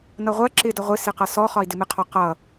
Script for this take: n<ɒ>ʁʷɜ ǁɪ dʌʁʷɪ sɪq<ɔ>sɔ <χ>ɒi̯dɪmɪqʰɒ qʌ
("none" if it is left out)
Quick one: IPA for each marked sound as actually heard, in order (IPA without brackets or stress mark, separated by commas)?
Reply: ʌ, ʌ, χ